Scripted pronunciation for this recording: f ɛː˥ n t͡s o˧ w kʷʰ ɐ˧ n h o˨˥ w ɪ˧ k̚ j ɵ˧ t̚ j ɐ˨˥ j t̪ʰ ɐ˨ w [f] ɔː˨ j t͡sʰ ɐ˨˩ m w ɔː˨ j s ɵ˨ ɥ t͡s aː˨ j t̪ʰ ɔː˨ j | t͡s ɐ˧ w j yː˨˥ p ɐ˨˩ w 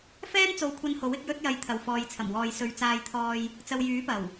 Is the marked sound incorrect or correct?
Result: correct